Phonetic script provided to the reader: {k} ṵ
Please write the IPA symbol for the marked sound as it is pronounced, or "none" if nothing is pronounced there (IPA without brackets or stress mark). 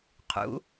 qʰ